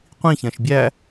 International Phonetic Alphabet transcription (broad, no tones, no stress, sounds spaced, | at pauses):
qʷ ĩ ç ɛ̃ ʃ bʲ æ